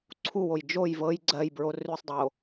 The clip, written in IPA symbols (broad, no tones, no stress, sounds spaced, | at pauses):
ǀʰ u w o j d͡ʒ o j v ɤ j ɡ͡ǀ ɜ j b ɹ o r ʉ sˤ dˤ o